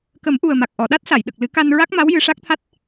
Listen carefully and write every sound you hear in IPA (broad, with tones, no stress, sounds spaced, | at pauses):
k ə˨˩˦ m ʔ u˨˩ ə̯ m a˨˩ k̚ ʔ ɔ˨˩˨ ɗ a˦˥ t̚ s a˨˩˨ j ɗ ə˨˩ k̚ l ɨ˨˩˦ k a˧ n ɹ a˦˥ k̚ m a˧˥ w j ɨ˧ ʂ a˦˥ k̚ t̪ʰ a˦˥ t̚